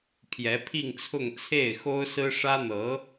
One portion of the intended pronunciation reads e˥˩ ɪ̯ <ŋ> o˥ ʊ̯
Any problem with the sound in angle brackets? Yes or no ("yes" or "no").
yes